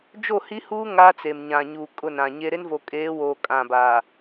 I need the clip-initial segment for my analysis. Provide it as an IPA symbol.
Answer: d͡ʒ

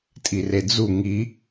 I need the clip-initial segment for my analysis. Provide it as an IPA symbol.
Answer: tʼ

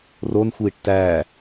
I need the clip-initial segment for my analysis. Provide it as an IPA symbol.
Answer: r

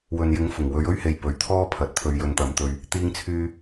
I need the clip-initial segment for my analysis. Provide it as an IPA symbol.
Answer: w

